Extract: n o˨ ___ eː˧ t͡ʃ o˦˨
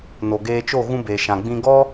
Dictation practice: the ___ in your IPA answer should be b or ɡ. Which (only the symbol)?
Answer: ɡ